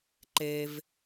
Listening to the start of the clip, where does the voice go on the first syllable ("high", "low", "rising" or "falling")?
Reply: high